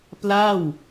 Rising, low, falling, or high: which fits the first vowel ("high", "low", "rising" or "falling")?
falling